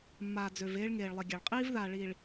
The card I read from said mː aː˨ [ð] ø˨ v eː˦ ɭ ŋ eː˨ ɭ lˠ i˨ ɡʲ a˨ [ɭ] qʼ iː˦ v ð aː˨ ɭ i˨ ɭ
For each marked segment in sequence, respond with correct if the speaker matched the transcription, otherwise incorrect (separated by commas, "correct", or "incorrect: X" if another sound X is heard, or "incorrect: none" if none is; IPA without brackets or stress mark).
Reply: incorrect: d͡z, correct